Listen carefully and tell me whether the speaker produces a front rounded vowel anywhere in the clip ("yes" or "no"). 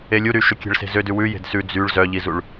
yes